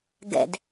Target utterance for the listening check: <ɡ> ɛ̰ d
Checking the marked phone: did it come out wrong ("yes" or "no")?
no